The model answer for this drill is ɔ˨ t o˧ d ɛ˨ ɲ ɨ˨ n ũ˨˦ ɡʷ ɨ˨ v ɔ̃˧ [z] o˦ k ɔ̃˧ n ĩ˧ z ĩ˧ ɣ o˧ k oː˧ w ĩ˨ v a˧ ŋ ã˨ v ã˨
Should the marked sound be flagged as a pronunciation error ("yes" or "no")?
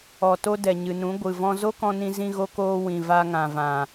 no